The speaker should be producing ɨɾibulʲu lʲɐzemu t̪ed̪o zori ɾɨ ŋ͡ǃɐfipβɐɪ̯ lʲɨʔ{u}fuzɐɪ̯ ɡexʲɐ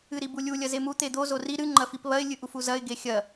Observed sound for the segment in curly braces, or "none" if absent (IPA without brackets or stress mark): u